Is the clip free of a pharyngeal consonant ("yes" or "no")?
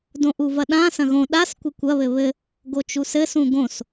yes